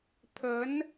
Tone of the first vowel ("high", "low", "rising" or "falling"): rising